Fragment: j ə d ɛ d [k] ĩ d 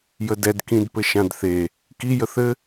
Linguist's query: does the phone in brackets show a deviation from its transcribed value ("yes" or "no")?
no